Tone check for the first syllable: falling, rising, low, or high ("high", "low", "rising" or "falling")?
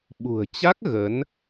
low